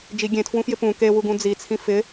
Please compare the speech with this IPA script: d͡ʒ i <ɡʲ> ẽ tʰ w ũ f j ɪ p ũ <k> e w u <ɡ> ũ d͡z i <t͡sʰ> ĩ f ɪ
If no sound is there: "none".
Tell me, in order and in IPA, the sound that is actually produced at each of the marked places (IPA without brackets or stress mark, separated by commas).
ɡʲ, k, ɡ, t͡sʰ